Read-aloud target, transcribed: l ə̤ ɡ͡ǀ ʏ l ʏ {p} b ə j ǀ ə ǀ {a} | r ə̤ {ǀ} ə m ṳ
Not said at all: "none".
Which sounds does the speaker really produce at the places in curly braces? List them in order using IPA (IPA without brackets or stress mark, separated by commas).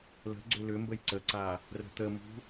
m, a, t̪